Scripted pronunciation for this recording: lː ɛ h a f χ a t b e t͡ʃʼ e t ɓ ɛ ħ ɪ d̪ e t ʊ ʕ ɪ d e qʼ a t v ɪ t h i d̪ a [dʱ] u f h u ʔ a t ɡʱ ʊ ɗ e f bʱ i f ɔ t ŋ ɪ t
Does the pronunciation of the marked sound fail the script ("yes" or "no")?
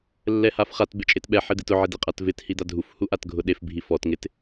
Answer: no